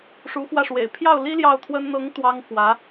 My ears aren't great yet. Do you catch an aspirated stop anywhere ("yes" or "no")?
yes